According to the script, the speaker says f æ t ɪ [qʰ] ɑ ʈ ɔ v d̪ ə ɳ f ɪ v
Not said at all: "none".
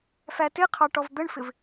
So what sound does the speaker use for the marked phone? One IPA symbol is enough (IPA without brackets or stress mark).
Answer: qʰ